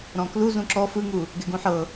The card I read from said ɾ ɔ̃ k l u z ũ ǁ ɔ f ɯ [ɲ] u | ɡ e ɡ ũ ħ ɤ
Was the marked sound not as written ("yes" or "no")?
yes